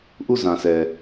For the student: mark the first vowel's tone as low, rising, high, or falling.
falling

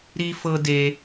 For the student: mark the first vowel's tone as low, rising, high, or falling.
high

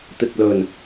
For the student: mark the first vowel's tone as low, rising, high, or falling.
low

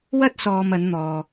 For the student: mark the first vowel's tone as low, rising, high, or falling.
high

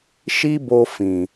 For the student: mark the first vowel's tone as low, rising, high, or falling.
high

